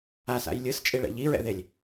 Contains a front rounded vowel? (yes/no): no